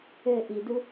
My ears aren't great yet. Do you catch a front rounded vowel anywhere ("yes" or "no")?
yes